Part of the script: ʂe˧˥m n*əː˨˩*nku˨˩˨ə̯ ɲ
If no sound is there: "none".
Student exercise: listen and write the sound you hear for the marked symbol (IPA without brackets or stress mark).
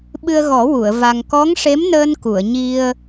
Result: əː˧